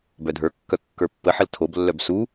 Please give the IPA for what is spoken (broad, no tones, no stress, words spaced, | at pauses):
bœdʱə˞kːœ kːə˞pːəħəl tʰoblːœb su